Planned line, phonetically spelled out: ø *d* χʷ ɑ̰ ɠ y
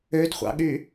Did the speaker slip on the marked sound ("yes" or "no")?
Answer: no